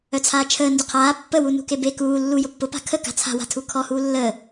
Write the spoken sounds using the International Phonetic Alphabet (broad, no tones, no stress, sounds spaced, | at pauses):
œ t͡sʰ aː t͡ʃʰ əː n d ʊ qʰ aː pː ə w u n ṳ k e b e k uː lː u j ʊ pː ʊ p a̤ kʰ ə k a̤ t͡sʰ a̤ w a̤ tʰ u kʰ ɔ h uː lː əː